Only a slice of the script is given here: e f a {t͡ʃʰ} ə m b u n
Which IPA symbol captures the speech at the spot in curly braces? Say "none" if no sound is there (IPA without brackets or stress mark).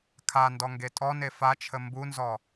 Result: t͡ʃʰ